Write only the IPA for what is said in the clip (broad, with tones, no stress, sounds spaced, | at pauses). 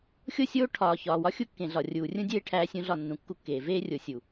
xʲ o˦ sʲ oː˦ ʈʰ ɒː˨ ç ɒː˨ w ɒ˦ xʲ u˦ kː ẽ˨ ɮ ɒ˨ rʲ uː˨ rʲ ũ˦ dʲ eː˦ ʈʰ æː˦ sʲ ũ˦ ɮ ɒ˦˨ nː ũ˨ kː u˦ kː eː˨ v eː˦ rʲ o˨ sʲ u˨